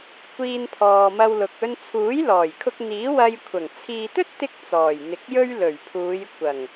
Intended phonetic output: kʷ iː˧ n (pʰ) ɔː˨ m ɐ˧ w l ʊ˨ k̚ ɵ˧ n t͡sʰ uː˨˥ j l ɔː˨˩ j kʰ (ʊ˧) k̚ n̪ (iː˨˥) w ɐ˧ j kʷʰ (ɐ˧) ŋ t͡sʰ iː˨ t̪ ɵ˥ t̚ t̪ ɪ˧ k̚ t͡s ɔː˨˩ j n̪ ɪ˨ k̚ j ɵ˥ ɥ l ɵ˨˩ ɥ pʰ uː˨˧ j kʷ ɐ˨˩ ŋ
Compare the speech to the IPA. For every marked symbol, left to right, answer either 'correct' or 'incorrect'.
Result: correct, correct, correct, incorrect: ɐ˨˩

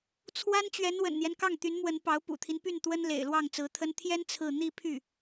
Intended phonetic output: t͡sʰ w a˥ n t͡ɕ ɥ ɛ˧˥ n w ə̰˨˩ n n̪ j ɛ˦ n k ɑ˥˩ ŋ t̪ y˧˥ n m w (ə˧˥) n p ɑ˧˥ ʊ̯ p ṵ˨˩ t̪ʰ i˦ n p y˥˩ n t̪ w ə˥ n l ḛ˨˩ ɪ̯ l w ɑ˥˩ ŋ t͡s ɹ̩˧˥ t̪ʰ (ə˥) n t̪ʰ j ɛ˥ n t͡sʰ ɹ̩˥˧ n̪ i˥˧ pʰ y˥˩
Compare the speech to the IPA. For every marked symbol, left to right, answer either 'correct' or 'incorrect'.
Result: correct, correct

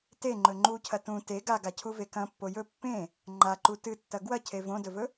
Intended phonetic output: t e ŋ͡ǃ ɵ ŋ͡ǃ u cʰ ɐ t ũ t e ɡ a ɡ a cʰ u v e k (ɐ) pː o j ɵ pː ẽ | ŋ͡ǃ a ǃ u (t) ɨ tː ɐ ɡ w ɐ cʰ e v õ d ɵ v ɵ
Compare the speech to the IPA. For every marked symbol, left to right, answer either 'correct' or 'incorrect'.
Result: incorrect: ɐ̃, correct

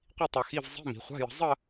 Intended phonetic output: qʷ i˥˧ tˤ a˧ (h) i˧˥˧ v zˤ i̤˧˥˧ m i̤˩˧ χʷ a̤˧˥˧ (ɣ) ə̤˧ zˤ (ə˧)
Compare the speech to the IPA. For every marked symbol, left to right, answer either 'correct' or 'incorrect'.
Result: incorrect: x, incorrect: j, incorrect: ə˥˧

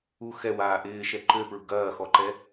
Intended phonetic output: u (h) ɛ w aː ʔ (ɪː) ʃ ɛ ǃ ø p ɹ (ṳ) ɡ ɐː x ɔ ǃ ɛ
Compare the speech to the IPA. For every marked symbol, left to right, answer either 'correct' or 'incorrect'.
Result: incorrect: x, correct, correct

